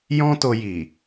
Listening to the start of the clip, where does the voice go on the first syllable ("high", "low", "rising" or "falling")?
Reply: high